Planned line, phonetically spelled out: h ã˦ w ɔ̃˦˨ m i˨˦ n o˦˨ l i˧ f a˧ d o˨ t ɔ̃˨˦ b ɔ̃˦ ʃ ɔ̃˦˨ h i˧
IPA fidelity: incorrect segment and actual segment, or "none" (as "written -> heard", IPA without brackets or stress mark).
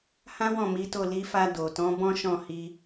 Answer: n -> t